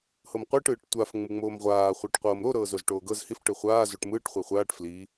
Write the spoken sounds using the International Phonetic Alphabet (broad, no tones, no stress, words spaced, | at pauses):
hɤmqʷɯːʈ ɯːʈtʷaf ŋ͡mɯŋ͡moːmʁʷaː χʷaʈqʷɤːmɾo ɾɤːzozʈoːɡɤz hif ʈɯχʷaː zoʈmɯːʈ χʷeχʷaːʈ fli